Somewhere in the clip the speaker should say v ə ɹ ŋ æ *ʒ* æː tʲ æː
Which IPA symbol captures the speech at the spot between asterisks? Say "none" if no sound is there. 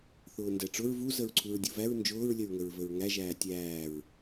ʒ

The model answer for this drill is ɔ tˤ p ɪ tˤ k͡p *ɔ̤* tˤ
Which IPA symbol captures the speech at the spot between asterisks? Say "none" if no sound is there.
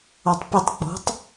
ɔ̤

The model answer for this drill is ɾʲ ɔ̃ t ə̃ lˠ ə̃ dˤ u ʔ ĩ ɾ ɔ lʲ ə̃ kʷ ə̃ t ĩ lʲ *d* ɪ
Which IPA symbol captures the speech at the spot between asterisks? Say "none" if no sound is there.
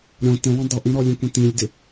d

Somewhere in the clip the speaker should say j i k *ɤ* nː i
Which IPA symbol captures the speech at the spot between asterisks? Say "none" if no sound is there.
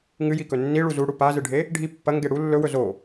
ɵ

